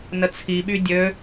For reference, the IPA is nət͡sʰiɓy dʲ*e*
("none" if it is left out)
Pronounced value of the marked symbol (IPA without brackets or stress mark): ø